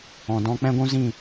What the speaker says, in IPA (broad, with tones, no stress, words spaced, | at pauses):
ɔ̃˨dɔ̃˧ k͡pɛ̃˦ɡʷũ˦zĩ˦˨